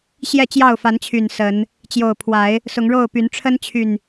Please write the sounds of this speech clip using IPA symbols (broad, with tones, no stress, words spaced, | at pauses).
ɕjɛ˥˨t͡ɕjɑ˥˨ʊ̯fa˨˦n t͡ɕʰy˨˩n sə˨˦n | t͡ɕjo˨˩ʊ̯pʰwa˨˦ɪ̯ | sʊ˨˦ŋɻo˥˨ʊ̯py˨˦n ʈ͡ʂʰə˦nt͡ɕʰy˨n